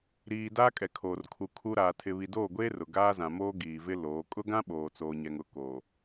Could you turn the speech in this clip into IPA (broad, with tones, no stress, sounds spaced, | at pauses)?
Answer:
ɾ iː˨ d aː˦ kʼ ɛ˨ kʰ oː˨ r kʰ u˨ kʰ u˨ ɾ aː˨ tʰ ɪ˨ β i˨ d oː˦˨ ɡʷ eː˦ r ʊ˨ ɡ aː˦ z ã˨ m oː˦ ɡ iː˨ v ɪ˦ l oː˨˦ kʼ ʊ˦ ɡ ã˦ ɓ oː˨ t͡s oː˨ ɲ ɛ˨ ŋ ʊ˨ k oː˨